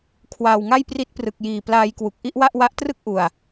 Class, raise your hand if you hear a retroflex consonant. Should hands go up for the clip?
no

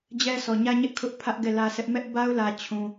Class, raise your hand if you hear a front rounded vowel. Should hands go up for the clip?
no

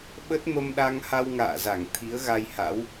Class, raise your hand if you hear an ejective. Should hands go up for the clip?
no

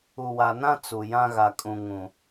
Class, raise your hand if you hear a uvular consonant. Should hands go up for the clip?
no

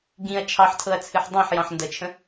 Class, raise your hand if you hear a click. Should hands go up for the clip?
no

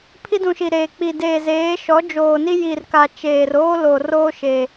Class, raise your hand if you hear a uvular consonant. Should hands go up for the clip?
no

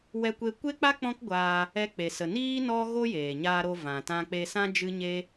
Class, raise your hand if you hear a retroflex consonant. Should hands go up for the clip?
no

